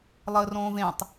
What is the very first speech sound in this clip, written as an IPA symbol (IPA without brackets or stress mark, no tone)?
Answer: lˠ